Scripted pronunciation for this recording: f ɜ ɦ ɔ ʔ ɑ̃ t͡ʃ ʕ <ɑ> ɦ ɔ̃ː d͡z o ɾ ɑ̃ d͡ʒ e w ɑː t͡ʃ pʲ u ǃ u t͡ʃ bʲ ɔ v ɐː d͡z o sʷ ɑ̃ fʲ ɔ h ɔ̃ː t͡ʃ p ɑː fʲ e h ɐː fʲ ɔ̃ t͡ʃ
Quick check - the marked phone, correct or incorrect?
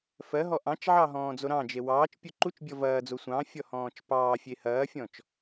correct